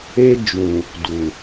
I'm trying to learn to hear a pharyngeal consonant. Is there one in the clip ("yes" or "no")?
no